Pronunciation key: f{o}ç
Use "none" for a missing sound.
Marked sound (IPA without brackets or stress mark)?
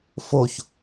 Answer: o